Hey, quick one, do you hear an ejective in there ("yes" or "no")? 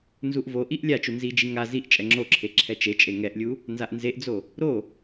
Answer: yes